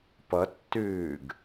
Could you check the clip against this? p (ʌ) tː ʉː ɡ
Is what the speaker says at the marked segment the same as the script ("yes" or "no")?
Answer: yes